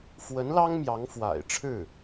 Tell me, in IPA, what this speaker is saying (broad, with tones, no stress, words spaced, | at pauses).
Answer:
fwə˧˥nlɑ˥ŋ mjɑ˧˥ŋfwa̰˨˩ɪ̯ʈ͡ʂʰɻ̩˥˩